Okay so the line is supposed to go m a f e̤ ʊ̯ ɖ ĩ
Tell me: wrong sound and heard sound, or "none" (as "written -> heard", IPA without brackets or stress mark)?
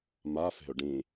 none